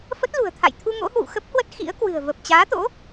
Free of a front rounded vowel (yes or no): yes